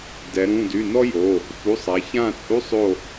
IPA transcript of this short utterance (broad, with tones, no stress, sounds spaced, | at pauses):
d ɛ˩˧ ɾ ũ˩˧˩ d y˩˧˩ n ɔ˥ j o˩˧˩ | f u˩˧˩ sˤ a˩˧ ç ã˦˨ t͡sʼ u˧˥˧ sˤ o˦˨